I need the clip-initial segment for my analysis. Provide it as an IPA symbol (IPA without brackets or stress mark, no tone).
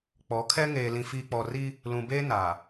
k͡p